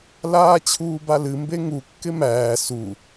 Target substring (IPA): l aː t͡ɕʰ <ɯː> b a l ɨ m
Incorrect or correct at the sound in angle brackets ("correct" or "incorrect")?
incorrect